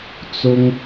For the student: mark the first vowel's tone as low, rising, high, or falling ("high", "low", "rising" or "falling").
high